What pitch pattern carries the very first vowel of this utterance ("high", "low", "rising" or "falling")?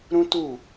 high